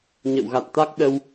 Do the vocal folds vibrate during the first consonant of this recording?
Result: yes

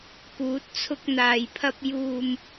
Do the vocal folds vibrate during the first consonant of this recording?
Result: no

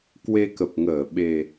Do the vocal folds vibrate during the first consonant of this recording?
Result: no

